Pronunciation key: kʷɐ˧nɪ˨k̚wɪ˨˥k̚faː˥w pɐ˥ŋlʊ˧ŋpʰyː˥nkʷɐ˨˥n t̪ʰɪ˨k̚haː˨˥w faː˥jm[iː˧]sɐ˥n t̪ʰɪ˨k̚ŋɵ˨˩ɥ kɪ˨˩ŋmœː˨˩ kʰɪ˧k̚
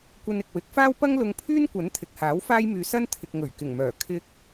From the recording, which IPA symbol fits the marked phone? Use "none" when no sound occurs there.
yː˧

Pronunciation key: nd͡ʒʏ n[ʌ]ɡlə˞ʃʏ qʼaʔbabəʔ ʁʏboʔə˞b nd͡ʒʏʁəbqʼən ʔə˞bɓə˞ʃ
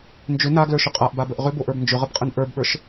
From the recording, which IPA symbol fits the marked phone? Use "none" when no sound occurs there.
a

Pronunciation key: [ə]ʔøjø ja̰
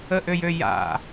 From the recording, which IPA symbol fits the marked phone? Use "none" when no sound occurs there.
ə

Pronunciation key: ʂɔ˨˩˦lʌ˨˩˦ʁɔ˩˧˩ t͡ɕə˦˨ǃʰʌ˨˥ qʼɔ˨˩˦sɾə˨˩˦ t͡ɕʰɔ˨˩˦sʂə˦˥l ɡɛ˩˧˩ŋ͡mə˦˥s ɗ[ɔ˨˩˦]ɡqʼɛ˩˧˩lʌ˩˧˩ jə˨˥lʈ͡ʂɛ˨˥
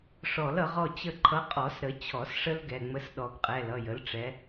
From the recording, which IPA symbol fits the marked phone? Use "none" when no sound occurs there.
ɔ˨˩˦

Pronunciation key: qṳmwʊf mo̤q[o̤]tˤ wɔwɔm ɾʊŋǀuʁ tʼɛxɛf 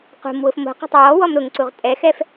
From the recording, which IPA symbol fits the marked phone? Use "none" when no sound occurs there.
ɔ̤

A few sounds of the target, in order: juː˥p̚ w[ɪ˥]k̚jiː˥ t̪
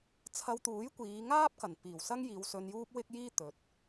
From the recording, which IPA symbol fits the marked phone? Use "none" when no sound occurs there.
ɪ˥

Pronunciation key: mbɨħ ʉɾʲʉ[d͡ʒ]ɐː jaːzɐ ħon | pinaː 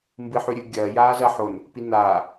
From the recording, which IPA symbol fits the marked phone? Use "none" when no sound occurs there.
ɡʲ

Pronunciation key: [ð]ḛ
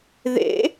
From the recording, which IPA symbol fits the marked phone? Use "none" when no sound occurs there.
ð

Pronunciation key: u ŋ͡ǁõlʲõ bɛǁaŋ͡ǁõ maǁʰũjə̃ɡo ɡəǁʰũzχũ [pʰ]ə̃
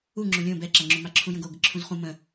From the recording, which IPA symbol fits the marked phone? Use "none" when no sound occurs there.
m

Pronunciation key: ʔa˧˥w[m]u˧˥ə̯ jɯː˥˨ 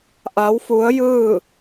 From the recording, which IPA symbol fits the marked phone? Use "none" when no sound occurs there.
f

